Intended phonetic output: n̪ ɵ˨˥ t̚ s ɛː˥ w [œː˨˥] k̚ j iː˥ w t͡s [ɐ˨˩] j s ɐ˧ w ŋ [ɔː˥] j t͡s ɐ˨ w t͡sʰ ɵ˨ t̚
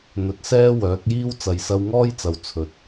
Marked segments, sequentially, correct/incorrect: correct, incorrect: ɐ˨, correct

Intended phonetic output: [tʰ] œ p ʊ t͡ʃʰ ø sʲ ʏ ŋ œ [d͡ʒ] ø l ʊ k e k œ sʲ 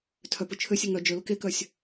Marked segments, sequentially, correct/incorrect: correct, correct

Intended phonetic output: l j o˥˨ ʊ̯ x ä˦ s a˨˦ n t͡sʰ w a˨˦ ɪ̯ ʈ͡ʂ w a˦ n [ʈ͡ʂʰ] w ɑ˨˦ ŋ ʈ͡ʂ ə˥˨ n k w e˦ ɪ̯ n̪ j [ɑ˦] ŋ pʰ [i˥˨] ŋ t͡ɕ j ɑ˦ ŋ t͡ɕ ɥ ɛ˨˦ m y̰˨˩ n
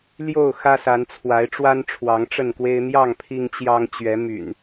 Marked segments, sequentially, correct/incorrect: correct, incorrect: ɑ˥˨, incorrect: i˦

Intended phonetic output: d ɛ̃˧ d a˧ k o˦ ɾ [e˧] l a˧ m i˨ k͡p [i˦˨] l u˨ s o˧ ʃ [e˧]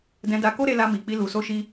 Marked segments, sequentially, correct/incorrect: correct, incorrect: i˧, incorrect: i˧

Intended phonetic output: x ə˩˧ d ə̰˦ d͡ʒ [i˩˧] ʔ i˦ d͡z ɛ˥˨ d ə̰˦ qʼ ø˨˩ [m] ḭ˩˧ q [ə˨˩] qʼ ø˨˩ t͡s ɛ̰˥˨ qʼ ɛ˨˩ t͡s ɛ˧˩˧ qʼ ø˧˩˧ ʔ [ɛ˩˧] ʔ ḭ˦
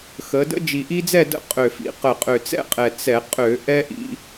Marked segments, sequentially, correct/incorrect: incorrect: i˨˩, incorrect: f, correct, incorrect: ɛ˦

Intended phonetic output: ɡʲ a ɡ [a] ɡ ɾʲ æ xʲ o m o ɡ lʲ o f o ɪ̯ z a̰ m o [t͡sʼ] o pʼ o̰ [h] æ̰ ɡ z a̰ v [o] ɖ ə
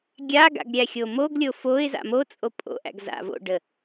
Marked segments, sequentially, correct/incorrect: incorrect: a̰, correct, incorrect: ʔ, incorrect: o̰

